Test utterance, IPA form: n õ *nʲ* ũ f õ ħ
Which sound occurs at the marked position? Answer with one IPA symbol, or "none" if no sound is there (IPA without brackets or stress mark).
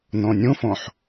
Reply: nʲ